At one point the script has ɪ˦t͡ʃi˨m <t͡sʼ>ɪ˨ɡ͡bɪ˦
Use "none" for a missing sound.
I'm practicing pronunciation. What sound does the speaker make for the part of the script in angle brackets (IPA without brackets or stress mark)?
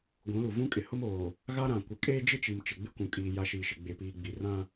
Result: t͡ʃ